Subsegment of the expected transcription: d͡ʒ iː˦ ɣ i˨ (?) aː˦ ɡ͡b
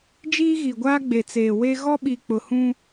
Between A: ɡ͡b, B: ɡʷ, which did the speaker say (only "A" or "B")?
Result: B